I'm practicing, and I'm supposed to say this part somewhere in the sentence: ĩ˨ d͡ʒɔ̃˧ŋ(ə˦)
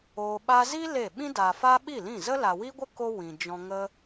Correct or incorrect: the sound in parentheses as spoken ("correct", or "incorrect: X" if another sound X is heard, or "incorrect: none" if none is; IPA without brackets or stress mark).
correct